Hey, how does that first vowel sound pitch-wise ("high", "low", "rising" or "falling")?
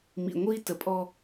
low